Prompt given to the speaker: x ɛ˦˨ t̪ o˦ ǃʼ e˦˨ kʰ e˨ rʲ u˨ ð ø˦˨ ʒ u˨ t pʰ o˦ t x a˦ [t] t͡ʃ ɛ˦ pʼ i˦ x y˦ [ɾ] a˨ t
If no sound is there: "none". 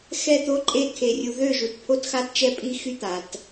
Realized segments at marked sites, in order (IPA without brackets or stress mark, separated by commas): t, t̪